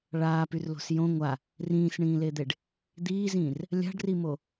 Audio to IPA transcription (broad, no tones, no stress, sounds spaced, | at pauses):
ɭ aː p y r l o̤ s j õ ŋʷ a | r ĩː s ɳ ĩː l e d̪ e ɖ | d̪ iː z ĩː r | lʲ a̤ ɖ r i m o